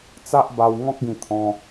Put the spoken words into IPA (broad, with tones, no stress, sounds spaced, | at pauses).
t͡s a˦ ʔ b a˧ w ŋ ɔ̃˦ k̚ ɡ ĩ˧ t̪ʰ ɔ̃˧